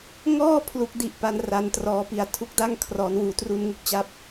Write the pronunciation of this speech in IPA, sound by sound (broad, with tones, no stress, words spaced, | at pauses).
ŋɔː˥˩ pʰlu˥˩k̚di˥˩ʔpa˧n ra˧ntrɔː˧pi˧a̯ tʰu˦˥k̚da˥˩ŋkʰrɔː˩˦nwuː˨˩ tru˧nŋu˥˩k̚t͡ɕa˦˥p̚